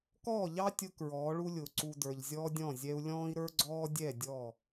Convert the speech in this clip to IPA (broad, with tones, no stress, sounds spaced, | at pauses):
k ɔː˦˨ ʎ ɑ˦ tʲ ʊ˧ k ɹ ɔː˨˦ ɭ u˦ lʲ ʊː˨ ǀ u˨ d ə˞˨ ʎ zʲ ɔː˦ dʲ ɔ̃˦˨ zʲ ɛ˧ u̯ lʲ ɔ̃ː˦ i̯ ɾ ə˞˦ ɡ͡ǀ ɔː˦ dʲ ɛ˦˨ dʲ ɔ˦˨